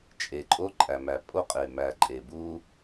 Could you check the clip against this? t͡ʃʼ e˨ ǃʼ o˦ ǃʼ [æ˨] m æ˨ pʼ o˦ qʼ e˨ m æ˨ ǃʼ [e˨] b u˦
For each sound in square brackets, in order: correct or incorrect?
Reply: correct, correct

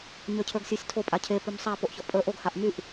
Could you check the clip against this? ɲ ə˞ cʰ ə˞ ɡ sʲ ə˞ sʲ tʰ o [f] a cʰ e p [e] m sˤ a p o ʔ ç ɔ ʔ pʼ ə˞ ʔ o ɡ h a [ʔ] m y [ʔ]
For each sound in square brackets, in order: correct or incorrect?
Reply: incorrect: pʼ, incorrect: y, correct, correct

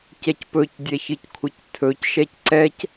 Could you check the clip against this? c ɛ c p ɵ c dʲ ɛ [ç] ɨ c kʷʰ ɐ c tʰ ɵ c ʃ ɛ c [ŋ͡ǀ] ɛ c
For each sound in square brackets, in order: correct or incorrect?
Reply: correct, incorrect: ǀ

